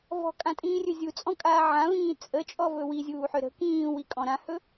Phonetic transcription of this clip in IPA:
vɔ̤kʼãtʼĩːrʲɵ zʲut͡sʼɔ̃kʼaː ʕãvĩː t͡sʼət͡ʃʼɔvɵ wizʲuːħø ɾə̤ kĩːwikʼɔ̃ ɾãhɵ

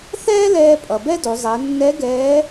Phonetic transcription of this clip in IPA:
θɛː˥lɛː˧ pʼʌ˩bɛ˥do˩˧ zˤɛ˩˧nːɛ˧˥ ɡɛː˧˥

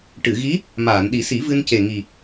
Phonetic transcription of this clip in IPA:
ʈɨ˨˩˨ɣi˧˥ | maː˨˩˨nɗi˨˩˦si˨˩˦vɨ˧n ce˨˩ŋi˨˩

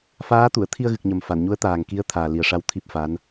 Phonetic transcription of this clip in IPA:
faː˧˥t̪u˨˩˨ə̯ t̪ʰi˧ə̯ɣɨ˨˩k̚ɲə˨˩m fa˨˩˨nɲu˧˥ə̯t̪aː˨˩ŋki˧˥ə̯ t̪ʰaː˨˩ li˨˩ə̯ʂa˧˥w t̪ʰi˦˥p̚fa˧˥n

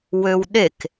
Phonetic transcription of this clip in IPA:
wøwɗek

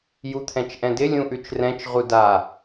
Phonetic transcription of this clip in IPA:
jut̪ʰɛ̃t͡ʃʔɛ̃dɪ lʲũʔʉt͡ʃrɛ̃t͡ʃ ʁuda

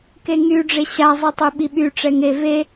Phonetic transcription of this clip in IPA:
keŋyɖ͡ʐe ɕazˤitˤy ɓiɓy ʈ͡ʂɛŋe ve

